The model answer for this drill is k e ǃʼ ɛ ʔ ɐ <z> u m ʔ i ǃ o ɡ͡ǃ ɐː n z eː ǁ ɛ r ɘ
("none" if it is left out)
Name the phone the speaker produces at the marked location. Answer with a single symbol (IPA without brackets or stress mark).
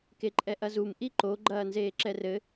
z